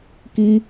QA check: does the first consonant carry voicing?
no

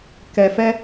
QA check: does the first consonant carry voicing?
no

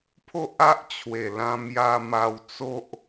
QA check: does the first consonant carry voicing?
no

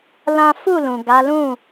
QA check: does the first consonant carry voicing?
yes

